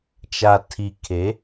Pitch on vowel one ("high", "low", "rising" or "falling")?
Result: low